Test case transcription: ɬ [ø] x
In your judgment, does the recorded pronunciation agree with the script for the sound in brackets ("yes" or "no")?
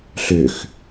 yes